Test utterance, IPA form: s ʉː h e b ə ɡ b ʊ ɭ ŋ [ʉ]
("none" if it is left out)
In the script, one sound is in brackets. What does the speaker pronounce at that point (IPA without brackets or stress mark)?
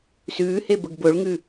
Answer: ʉ